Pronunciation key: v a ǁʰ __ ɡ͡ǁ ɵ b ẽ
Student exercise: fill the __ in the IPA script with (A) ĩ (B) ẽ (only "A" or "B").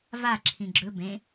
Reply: A